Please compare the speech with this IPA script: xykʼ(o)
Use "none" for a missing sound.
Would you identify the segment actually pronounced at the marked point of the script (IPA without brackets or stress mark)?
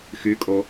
o